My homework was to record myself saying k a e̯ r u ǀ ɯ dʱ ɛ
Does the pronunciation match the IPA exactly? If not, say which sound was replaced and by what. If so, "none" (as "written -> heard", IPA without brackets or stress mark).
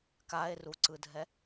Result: none